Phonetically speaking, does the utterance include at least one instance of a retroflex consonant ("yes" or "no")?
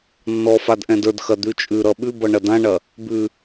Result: yes